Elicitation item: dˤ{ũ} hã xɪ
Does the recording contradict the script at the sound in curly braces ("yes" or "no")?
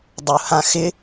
yes